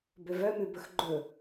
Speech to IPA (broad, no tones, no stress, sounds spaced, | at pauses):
b ø v œ m ʉ b ɵ x ɡ͡ǃ ɵ